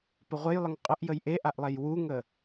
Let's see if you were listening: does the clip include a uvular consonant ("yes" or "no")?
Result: yes